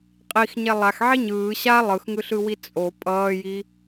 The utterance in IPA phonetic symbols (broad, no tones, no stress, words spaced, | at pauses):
qʼixɲɛ lˠaxʕi ɲɯː ɕa lˠɯxŋɯɬɯwi t͡sʼo pʼʌːji